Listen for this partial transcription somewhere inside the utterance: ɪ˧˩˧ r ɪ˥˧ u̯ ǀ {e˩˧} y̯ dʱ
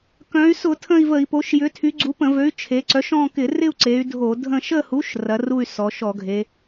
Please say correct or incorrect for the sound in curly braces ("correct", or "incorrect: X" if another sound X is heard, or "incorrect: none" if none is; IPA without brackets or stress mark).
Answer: correct